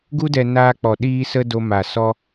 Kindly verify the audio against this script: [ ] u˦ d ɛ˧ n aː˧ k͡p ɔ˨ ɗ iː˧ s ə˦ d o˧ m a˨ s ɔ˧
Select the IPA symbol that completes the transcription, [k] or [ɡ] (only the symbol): ɡ